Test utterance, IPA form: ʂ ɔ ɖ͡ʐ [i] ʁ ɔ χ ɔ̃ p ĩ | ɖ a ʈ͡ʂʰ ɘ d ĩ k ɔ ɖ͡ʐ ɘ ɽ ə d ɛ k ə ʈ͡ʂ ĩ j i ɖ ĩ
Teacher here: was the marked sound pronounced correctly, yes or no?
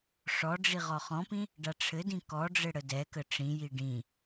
yes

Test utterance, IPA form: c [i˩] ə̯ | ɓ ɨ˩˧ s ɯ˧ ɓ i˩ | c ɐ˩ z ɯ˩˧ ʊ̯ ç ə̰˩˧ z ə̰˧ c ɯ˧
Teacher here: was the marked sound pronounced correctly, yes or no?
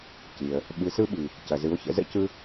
yes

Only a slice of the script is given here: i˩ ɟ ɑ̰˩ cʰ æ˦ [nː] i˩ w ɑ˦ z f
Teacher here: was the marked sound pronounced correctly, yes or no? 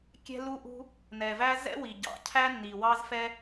yes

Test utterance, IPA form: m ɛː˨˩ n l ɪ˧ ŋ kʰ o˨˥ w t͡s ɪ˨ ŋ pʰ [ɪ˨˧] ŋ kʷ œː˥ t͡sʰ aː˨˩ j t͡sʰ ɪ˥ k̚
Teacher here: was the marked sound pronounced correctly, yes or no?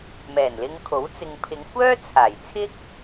yes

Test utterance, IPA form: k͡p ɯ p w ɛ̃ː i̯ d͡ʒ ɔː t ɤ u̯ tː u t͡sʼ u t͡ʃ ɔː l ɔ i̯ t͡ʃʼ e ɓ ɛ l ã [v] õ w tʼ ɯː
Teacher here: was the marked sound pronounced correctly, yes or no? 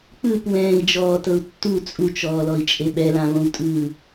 yes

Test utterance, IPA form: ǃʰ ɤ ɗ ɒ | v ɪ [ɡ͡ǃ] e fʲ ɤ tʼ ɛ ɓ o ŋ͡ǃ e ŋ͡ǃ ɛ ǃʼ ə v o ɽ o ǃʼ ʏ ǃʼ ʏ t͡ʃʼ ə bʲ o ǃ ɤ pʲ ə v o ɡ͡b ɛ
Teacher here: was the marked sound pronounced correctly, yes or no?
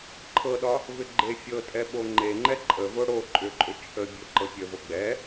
yes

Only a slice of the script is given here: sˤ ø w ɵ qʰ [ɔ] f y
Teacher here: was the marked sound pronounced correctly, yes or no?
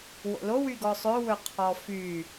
yes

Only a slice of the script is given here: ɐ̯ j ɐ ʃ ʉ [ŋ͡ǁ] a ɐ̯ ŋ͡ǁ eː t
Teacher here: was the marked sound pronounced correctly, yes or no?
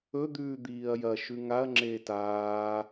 no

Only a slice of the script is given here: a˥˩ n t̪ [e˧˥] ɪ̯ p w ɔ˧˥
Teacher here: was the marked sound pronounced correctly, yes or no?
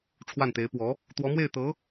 yes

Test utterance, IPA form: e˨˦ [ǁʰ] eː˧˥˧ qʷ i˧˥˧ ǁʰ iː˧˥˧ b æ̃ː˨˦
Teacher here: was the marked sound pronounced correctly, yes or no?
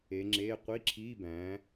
no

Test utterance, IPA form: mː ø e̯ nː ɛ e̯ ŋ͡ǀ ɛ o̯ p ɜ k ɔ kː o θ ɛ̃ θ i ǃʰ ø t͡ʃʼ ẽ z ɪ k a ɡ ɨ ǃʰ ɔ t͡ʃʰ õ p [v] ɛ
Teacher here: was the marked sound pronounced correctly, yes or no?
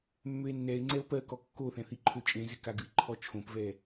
yes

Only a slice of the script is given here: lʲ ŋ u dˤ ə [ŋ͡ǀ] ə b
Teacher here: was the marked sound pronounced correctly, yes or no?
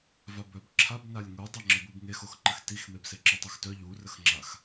no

